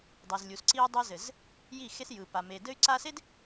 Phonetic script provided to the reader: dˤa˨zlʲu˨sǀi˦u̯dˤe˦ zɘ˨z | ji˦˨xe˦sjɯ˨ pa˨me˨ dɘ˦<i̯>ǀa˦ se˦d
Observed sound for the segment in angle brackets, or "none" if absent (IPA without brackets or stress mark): y̯